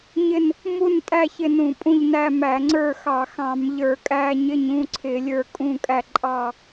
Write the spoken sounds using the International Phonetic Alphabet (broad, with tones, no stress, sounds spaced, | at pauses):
ɲ ɪ˦˨ n | m u˦˨ n tʼ æ˦˨ ç ɪ˦˨ n ũ˧˩˧ pʼ ũ˦˨ ʎ n æ˦˨ m æ˧˩˧ ŋ͡ǀ ə˞˦˨ x ɑ˧˩˧ x ɑ̃˧˩˧ m ʎ ə˞˧˩˧ kʼ æ˦˨ ɲ ɪ˦˨ ɲ ũ˦˨ ǀʰ ɪ˧˩˧ lʲ ə˞˦˨ kʼ ũ˦˨ kʼ æ˦˨ ǃʼ ɑ˦˨